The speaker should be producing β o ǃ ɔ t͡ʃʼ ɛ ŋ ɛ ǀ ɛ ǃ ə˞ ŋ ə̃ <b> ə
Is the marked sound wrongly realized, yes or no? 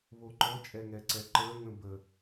no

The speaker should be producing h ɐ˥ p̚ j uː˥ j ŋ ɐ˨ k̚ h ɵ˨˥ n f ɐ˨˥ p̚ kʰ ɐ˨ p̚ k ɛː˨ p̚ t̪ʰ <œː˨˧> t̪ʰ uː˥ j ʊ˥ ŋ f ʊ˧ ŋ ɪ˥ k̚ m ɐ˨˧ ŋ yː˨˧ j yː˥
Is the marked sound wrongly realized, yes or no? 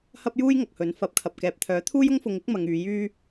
yes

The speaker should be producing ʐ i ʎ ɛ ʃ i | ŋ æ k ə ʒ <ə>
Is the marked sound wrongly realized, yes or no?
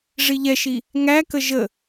no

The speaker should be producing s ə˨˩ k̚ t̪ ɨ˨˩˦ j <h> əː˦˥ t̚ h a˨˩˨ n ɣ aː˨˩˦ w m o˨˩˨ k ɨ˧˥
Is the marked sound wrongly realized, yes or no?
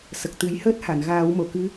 no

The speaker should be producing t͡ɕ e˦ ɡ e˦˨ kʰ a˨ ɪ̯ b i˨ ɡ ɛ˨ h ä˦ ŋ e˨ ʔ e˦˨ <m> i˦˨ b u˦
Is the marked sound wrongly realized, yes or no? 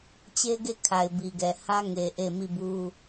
no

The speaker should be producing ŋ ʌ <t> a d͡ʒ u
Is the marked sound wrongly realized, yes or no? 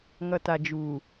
no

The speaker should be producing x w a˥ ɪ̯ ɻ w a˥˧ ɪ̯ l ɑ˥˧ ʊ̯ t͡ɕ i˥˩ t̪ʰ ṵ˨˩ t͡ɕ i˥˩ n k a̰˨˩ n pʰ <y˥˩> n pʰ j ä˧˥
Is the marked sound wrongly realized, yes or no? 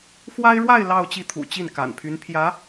yes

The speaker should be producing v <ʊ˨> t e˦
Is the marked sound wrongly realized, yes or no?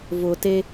no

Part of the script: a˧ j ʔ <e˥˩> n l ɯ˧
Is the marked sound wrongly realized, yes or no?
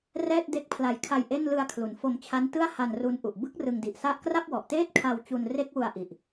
no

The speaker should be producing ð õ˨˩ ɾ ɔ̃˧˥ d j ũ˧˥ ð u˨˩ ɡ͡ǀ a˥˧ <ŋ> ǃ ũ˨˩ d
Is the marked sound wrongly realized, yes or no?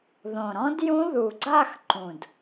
yes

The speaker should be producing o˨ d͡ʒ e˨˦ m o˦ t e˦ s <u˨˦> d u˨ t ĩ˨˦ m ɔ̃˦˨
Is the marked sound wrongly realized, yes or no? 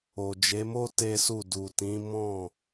yes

